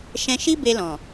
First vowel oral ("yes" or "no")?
no